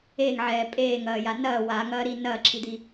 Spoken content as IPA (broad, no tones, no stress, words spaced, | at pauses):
eːŋʕɛː pʼeːŋɐːja nɐː waŋɐːɾi nɐːǁʰid̪i